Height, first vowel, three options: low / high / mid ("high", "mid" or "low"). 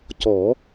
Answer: mid